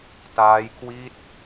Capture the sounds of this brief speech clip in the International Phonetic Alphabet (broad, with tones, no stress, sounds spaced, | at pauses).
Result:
t aː˦˥ j k w i˥˩ t̚